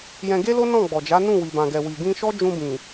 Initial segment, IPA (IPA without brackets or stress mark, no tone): j